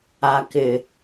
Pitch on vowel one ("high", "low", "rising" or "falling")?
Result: low